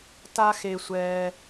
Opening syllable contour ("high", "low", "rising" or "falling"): high